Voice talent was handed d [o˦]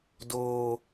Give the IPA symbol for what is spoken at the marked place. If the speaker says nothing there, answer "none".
oː˦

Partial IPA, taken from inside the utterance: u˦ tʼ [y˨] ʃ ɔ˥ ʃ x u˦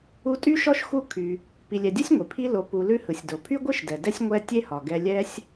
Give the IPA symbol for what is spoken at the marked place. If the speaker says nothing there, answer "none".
y˥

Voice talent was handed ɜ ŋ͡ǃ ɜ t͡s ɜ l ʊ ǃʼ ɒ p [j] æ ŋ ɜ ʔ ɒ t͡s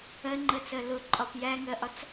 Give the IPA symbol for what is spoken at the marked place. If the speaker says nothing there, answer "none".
j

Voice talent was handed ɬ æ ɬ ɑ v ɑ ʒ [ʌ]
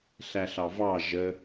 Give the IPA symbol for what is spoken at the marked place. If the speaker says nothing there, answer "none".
ə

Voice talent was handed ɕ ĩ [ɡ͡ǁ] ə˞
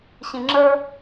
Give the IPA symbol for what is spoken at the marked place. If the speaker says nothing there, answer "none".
ŋ͡ǁ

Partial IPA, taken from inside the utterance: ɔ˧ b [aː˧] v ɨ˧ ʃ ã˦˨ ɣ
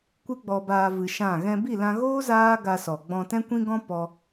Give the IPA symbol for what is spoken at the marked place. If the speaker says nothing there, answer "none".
aː˧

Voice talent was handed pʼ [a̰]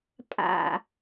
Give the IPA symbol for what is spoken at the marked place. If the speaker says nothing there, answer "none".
a̰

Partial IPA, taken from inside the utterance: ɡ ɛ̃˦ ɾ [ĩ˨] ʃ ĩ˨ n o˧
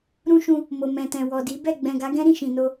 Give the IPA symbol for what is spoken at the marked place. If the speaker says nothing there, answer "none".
ĩ˦˨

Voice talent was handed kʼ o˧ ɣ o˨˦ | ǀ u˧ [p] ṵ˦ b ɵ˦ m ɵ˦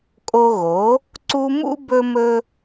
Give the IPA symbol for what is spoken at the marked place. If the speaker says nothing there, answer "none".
m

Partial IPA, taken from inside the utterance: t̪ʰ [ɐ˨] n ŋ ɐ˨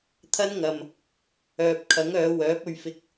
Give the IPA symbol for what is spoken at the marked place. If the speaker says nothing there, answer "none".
ɐ˥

